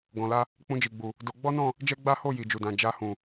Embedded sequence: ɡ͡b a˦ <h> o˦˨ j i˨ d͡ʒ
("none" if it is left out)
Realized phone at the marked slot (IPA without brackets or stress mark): h